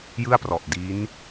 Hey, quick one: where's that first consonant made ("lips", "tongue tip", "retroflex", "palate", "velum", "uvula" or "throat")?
palate